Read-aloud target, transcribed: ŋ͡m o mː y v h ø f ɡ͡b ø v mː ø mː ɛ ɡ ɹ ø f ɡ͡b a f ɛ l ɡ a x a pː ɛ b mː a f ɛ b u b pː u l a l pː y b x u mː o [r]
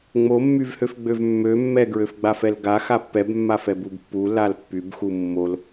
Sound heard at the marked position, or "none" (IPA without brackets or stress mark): l